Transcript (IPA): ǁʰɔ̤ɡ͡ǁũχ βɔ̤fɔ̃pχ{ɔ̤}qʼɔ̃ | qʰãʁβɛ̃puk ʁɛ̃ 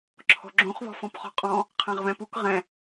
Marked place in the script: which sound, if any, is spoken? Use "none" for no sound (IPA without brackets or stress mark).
ɔ̤